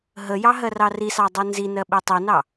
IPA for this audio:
ɦəjɑ ɦɜrɑrisɑ dˤunzinɜ ɓitˤinɑ

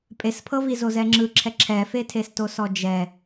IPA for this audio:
pʼespʰɤvizo zɛŋ͡ǁɯǁʰɛ ǁʰɛfetʰesto sɔd͡ʒɛ

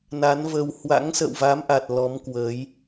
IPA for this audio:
na˨˦nvə˧w hwa̰˧˥ŋsə̰˧˨wva˨˦mʔa˨˩t̚ lɔ˨˦mkwə˨˦j

